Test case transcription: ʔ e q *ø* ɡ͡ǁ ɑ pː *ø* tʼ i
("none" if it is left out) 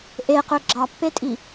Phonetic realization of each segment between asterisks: ø, e

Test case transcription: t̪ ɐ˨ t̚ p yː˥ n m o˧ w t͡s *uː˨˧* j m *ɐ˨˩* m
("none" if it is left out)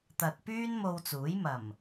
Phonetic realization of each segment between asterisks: uː˨˥, ɐ˨˩

